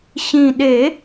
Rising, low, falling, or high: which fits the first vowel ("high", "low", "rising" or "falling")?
low